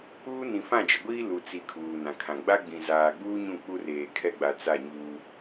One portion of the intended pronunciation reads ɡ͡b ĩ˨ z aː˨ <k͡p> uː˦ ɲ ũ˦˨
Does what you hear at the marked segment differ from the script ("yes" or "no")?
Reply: yes